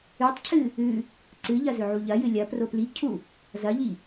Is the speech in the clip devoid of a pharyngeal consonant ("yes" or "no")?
no